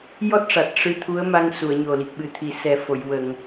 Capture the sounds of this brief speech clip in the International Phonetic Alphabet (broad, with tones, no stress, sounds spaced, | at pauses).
j ɔ˦˥ t̚ ʂ a˨˩ t̚ ʂ ɨ˧˥ t̪ʰ u˧˥ ə̯ m a˧ ŋ s u˨˩˨ ə̯ ɲ o˨˩ l i˨˩ k̚ ɓ ɨ˨˩ t̪ʰ i˨˩ s ɛ˨˩ f o˨˩˨ j w ə˨˩˨ ŋ